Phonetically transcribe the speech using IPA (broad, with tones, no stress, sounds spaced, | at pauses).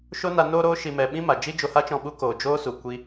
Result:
ʃ o˦ n a˧ n oː˧ ɾ oː˧ ʃ i˨ m ɛ˨ ɓ ĩ˦ m a˨ d͡ʒ i˦ d͡ʒ o˧ h a˦ t͡ʃ ɔ̃˧ ɓ u˦ k oː˨ d͡ʒ oː˦ s u˨ kʷ i˦